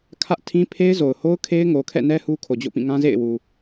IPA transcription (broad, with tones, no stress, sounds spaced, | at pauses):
kʰ ä˦ ʔ tʰ ĩ˦ pʰ e˦ ɪ̯ z o˨ ʊ̯ h o˦ ʊ̯ kʰ e˦ ɪ̯ ŋ o˨ kʰ ɛ̰˦˨ n ɛ˦ h u˦ kʰ o˨ d͡ʑ o̰˦˨ p ĩ˦˨ ŋ ã˦ z ḛ˦˨ ɪ̯ w u˨